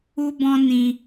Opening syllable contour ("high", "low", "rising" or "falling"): high